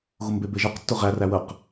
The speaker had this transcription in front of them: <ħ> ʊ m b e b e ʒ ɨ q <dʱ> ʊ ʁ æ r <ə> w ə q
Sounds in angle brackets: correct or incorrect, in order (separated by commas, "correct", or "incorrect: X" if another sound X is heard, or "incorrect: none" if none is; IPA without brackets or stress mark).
incorrect: ɣ, incorrect: tː, incorrect: æ